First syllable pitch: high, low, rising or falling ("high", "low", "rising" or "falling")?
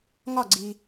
falling